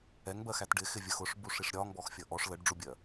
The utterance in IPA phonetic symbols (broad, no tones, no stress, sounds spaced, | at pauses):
ɛ ŋ b ɜ x æ t ɖ ɪ x ɪ vʲ ə x ʊ ʂ b u ʂ i ʂ ɾʲ ɒ ŋ b ɔ x fʲ ʌ ʔ ɔ ʂ l ə ɖ ɖ͡ʐ u bʲ ɜ